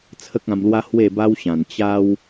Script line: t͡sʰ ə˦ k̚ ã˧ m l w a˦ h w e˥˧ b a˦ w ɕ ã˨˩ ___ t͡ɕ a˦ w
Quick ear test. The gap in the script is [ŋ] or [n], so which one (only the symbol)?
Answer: n